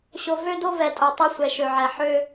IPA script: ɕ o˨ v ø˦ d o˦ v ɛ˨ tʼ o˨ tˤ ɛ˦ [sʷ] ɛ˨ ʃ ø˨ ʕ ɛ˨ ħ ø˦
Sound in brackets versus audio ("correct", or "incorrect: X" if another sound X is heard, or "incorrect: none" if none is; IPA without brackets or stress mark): correct